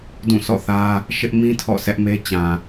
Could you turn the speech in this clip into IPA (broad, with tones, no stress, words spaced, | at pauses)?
dũ˦˨ sʰɔ̰˦˨θä˦ | ʃɪ˦ʔmĩ˦ tʰɔ̰˦˨sɛ˦ʔme˦ t͡ɕã˨